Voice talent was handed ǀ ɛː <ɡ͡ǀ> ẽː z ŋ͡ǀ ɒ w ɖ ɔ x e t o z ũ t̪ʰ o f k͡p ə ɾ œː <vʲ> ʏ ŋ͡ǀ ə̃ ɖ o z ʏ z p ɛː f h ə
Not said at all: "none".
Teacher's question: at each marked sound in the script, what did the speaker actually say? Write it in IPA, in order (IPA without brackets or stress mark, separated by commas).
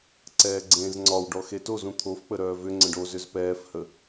ɡ͡ǀ, v